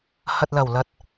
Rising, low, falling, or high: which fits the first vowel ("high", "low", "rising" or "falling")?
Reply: low